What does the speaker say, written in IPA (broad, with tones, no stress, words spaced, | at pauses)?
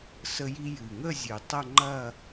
sə˧ji˧ jɨ˨˩ŋə˥˧ zʲɨ˨˩tˤɐ˥˧ŋ͡ǃɐ˥˧